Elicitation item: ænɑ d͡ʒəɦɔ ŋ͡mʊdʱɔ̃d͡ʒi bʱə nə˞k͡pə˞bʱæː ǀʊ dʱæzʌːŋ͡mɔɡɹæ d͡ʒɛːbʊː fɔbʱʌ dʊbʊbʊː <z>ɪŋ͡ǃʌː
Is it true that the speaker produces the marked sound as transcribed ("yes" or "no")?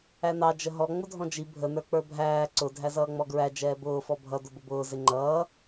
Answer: yes